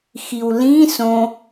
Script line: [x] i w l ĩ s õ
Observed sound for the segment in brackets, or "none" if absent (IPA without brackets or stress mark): x